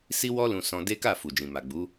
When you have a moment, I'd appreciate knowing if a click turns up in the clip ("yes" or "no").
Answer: no